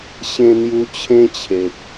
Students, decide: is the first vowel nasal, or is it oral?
nasal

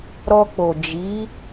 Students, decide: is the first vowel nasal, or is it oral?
oral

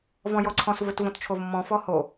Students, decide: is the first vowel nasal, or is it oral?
nasal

